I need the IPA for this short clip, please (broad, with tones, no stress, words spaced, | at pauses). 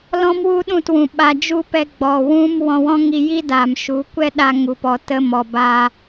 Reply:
lɔ̃˦mwu˦ ɗũ˦˨twũ˨ ɓa˧d͡ʒu˦ pɛ˧ɡ͡bɔ˨ wũ˦mwɔ̃˧ wɔ̃˦ŋi˧ji˦ daː˨mʃu˨˦ kʷɛ˦ ɗa˧ŋu˨pɔ˨ tə˧mɔ˨baː˧